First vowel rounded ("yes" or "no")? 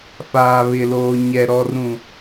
no